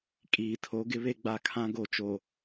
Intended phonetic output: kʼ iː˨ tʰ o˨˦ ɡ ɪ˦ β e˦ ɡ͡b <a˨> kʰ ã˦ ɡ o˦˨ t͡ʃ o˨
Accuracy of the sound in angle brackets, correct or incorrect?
incorrect